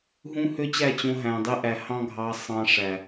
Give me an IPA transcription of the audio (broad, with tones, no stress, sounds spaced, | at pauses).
ɦ ũ˦ h ø˦ t͡ɕ æ˦˨ t͡ɕ õ˧ ɦ æ̃˨ dˤ i˧ ʔ æ˨ h ɑ̃˦ ɡʱ ɑ˧ sˤ ɑ̃˧ ʂ æ˨